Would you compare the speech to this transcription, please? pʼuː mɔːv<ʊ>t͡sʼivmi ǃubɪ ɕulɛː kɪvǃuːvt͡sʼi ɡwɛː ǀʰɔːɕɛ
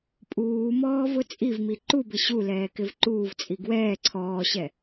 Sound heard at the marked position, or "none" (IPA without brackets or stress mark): ʊ